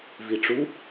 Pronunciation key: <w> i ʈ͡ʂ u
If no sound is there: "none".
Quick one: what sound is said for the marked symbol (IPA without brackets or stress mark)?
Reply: v